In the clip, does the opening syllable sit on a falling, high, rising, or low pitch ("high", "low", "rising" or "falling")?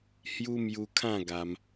high